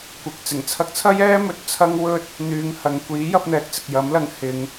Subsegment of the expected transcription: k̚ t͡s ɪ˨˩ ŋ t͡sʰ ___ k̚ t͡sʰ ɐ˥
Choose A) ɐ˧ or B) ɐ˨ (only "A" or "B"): A